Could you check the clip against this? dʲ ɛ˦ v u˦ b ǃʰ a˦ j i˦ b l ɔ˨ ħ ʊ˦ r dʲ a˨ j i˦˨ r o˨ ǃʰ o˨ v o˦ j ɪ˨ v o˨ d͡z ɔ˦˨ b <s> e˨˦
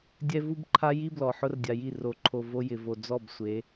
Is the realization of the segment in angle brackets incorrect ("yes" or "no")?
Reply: yes